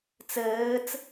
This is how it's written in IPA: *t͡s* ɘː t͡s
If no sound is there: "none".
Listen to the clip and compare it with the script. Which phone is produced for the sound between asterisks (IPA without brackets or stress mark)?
t͡s